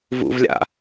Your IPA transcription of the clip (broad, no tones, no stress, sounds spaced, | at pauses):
v ṵ v lʲ a̰